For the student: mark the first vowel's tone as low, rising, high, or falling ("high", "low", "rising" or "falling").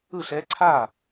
falling